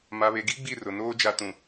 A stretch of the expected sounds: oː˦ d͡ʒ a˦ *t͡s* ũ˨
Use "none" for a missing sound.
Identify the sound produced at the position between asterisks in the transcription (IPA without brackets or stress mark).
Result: t